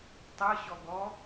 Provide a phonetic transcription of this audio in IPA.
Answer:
tˤ ɤ ɕ ɔ ɡ ɔ

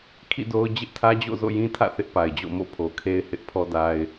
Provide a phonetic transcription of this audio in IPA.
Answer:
kʰ ḭ˦˨ d o˦ ʊ̯ d͡ʑ ɪ˦ ʔ tʰ ä˦ d͡ʑ o̰˦˨ z o̰˦˨ j ĩ˦ tʰ ä̰˦˨ θ ɪ˦ ʔ p a˨ ɪ̯ d͡ʑ o̰˦˨ m o̰˦˨ pʰ o˨ kʰ e˦ ɪ̯ h ɪ˦ ʔ pʰ ɔ˦ d a˦ ɪ̯

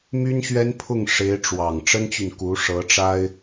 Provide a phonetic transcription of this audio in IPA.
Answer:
m y˥ n ɕ ɥ ɛ˥ n pʰ ʊ˥˩ ŋ ʂ e˧˥ ɪ̯ ʈ͡ʂ w ɑ˨˩ ŋ ʈ͡ʂ ə˥ n t͡ɕ y˨ n k u˧˥ ʂ ɤ˧˥ ʈ͡ʂ a˥ ɪ̯

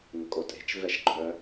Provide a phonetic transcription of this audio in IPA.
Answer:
ŋ ə kʼ o tʼ e̤ t͡ʃ v ɛ ʃ ɡ͡ǃ œ

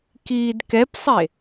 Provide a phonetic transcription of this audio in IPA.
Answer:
k iː d k ɛ p sˤ e

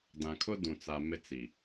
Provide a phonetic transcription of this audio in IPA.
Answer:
d ã˨ kʰ ʊ˦ d ũ˨ t͡s a˨ m ɪ˦ t͡s i˨

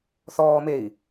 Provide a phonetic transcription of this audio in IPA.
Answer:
θ ɔː m e i̯

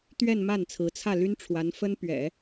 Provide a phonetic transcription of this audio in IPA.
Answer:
t̪ ɥ ɛ˥˧ n m a˥˩ n t͡sʰ ɹ̩˧˥ t͡sʰ ä˥˩ l y˥ n ʈ͡ʂʰ w a˧˥ n f ə˥ n p ɥ ɛ̰˨˩˦

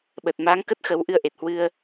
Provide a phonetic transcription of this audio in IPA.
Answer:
ɓ ə˨˩ t̚ m aː˨˦ ŋ k ə˦˥ t̚ x ə˨˦ w ʔ ɨ˧ ə̯ ʔ e˨˩ t̚ h w ɨ˧ ə̯

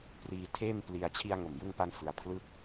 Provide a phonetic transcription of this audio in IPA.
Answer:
p r iː˧ tʰ eː˥˩ m p l i˧ a̯ t͡ɕʰ i˧ a̯ ŋ o˨˩ m j ɯ˧ ŋ p a˧ n f ɯ˧ a̯ pʰ l ɯ˥˩ k̚

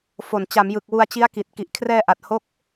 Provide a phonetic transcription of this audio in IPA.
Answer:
f o˨˩ n t͡ɕ a˩˦ m j ɯ˨˩ k̚ w u˧ a̯ t͡ɕ i˦˥ a̯ k i˨˩ t̚ k i˨˩ ʔ kʰ r ɛː˧ ʔ a˨˩ t̚ h o˦˥ k̚

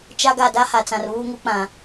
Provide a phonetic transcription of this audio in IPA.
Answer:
t͡ʃ a˦ ɡ a˦˨ d a˦ h a˨ t͡s ã˨ r β uː˦ ŋ u˦ k͡p ã˨

